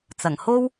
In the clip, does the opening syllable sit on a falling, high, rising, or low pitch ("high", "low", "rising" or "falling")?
low